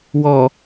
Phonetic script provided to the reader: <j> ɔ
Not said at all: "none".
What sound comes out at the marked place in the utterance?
w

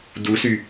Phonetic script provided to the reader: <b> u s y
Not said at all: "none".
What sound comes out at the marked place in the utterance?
d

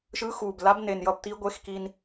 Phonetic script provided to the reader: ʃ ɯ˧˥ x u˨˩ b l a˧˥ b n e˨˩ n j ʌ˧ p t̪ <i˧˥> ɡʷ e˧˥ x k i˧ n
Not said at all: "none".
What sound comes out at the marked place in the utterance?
i˧˥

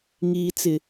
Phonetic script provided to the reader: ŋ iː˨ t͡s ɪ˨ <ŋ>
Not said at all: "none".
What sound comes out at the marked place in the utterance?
none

